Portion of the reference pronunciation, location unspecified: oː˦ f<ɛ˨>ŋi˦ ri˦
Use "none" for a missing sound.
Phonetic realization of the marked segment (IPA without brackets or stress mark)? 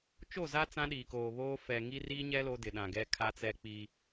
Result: ɛ˨